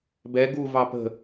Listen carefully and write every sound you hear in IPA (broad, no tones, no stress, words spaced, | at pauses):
bɛ ɡu vɑpə̤